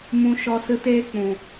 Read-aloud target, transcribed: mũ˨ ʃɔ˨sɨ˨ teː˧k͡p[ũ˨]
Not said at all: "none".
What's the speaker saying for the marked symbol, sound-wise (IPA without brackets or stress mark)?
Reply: ũ˨